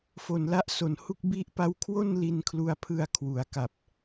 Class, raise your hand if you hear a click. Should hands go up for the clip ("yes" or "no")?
no